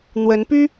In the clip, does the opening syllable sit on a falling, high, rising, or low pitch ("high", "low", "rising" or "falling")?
rising